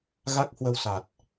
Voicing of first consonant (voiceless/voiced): voiced